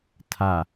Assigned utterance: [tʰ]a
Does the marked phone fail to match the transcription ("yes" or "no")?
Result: no